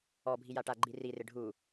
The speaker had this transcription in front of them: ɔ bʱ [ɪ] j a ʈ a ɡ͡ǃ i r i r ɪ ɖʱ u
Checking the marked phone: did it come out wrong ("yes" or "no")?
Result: yes